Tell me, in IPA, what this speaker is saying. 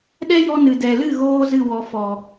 ɗ ɛ˦ j ɔ˧ n ɨ˨ d ɛ˨ l ɨ˦˨ ɣ oː˧ z ɨ˦˨ w ɔ˨ f ɔ˨

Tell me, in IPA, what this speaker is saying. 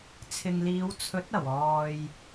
t͡sʰ ɪ˨ ŋ l iː˨˧ w t͡sʰ ɵ˨˥ t̚ ɐ˨˩ w ɔː˨ j

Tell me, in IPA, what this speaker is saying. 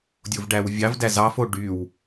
dʲ o v ɖ æ w vʲ ɑ v d æ z ɑ f o ɖ y w

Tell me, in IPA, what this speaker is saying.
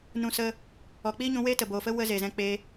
n ũ˧ s ə˧ | ɔ˨ k͡p iː˦ ɲ ũ˧ w eː˦ t ə˨ b oː˨ f ə˦ w ə˧ z e˨ z ɛ̃˧ k͡p e˧

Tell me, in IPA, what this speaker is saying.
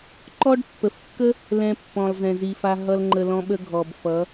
ǃ ɔ˦ ɖ pː ə˨ f kː ə˦ | l ɛ̃˧ pː ɔ̃˨ lˠ z ɛ̃˨ z i˨ f a˧ ɦ ʌ˦ l ŋ͡ǃ ə˧ l ɔ̃˦ ɓ ə˦ ɡʱ ɔ˨ b f ʌ˨˦

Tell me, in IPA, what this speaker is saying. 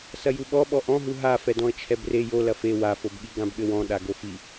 s ɐ j u ɓ ɔ ɓ ɔ ʔ ɔ̃ ɦ u ɦ a f ɛ d ɔ̃ ə̯ t͡ʃʰ ɛ b r e j o l ɐ f e w a f o b ɠ i ɡ ã b ɠ ɘ w ɔ̃ ɗ a ɡ o f i

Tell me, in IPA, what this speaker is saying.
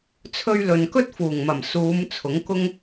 t͡sʰ ɵ˧ ɥ l ɵ˨ n k ɵ˥ t̚ f uː˨˩ ŋ m ɐ˨˩ m s uː˨˧ m t͡sʰ ʊ˨˥ ŋ k ʊ˥ ŋ

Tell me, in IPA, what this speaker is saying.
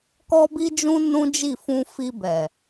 k ɔ˦ b i˦ d͡ʒ ũ˦ n ũ˦ d͡ʒ i˦˨ f ũ˧ f i˧ b ɛ˨

